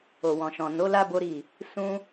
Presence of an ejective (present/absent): absent